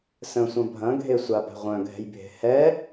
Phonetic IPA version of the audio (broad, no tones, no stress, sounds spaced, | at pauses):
s ə̃ sʷ ɐ̃ bʱ ɐ̃ ɡʱ e sʷ a b ɛ̤ ʁʷ œ̃ ɡʱ ɛ̤ j bʱ e̤ h ɛ